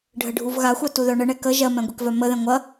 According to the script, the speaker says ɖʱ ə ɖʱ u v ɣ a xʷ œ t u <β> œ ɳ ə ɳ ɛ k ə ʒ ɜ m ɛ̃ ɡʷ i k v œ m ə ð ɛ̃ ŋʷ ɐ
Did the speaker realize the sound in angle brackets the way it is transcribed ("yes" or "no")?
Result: no